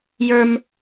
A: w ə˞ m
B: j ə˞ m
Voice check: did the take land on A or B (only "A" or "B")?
B